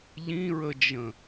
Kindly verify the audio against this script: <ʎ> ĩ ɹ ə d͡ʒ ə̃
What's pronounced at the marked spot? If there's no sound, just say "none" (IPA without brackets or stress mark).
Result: ʎ